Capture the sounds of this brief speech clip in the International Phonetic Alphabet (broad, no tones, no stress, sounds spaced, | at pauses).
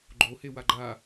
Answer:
ɡ͡ǃ o h e w a ɡ͡ǃ a